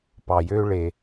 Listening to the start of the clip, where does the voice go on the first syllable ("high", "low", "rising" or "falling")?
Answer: low